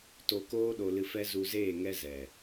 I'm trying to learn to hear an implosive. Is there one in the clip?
yes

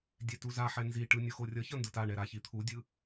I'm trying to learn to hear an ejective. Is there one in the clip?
no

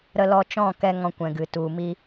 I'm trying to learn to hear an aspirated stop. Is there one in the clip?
no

